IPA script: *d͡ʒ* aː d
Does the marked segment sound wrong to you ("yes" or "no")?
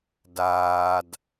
yes